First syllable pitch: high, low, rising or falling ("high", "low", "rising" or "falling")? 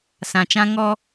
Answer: low